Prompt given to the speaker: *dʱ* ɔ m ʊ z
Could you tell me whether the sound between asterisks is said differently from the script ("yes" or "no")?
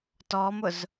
yes